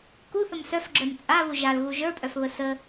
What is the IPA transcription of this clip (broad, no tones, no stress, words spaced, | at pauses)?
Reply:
kuθəm sœfɡ͡ǁœm t͡sʼaβu ʒalɣu ʒə˞pʼœfβə sə